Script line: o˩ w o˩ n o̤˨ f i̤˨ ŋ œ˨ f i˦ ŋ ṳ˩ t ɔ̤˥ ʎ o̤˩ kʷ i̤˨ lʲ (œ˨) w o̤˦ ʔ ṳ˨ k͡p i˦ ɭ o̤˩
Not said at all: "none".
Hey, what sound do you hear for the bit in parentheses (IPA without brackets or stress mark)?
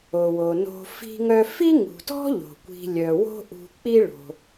œ˩